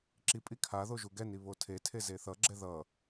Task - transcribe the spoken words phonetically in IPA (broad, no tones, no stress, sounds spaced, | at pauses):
ǁ i pʼ i kʰ a ð o ʒ u ɡ ɛ n i β o tʰ e tʰ e z e θ ʌ ɡ͡ǁ ɛ ð ʌ